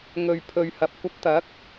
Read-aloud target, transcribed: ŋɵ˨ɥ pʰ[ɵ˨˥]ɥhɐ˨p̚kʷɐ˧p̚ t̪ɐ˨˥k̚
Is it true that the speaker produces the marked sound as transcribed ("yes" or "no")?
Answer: no